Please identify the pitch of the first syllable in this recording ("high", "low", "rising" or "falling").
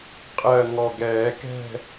low